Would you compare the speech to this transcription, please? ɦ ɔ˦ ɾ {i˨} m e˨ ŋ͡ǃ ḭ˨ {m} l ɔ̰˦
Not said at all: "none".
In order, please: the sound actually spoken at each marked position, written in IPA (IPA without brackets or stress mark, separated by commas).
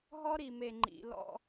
i˨, none